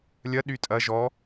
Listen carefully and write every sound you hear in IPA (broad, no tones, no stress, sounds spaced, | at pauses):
lʲ ɐ ɗ y tʼ ɐ ʒ ɔ